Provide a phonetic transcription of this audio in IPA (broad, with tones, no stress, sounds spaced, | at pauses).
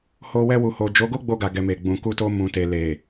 h o˧ w ɛ˧ w u˨ h o˨ d͡ʒ o˨˦ ɡ o˦ ɡ͡b o˧ ɡ a˨ ɡ ɛ˨ m e˨ ɡ͡b ũ˨ k u˧ t o˧ m ũ˨ t e˨ l e˨